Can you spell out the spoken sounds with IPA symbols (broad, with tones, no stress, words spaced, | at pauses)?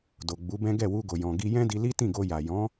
do˨ɡ͡bu˨˦bɛ̃˦ ɡɛ˦˨wu˧ɡo˨ jɔ̃˨ ɡi˧jɛ̃˦di˧ li˦tĩ˦˨ɡo˧ja˨ jɔ̃˨˦